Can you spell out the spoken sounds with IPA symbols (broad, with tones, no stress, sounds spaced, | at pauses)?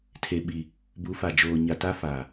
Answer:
tʰ e˨ ɓ i˨ | b u˨˦ f a˨ d͡ʒ oː˨ ɲ a˨ t a˦ f a˨